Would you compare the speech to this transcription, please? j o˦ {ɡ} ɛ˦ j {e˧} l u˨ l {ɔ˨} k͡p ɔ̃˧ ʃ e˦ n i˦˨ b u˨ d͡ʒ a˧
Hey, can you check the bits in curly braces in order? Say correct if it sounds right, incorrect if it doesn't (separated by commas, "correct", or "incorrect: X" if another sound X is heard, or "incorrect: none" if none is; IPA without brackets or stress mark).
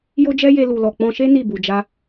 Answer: incorrect: d͡ʒ, correct, correct